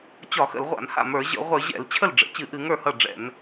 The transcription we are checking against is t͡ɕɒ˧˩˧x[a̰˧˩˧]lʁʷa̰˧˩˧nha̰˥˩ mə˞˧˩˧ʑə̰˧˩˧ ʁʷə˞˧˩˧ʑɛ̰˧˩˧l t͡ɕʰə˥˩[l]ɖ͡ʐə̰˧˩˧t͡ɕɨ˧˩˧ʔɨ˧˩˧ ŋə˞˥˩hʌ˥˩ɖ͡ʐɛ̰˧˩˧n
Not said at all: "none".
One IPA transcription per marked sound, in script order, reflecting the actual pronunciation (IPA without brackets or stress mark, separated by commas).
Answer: ə̰˧˩˧, l